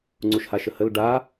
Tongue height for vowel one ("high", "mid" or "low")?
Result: high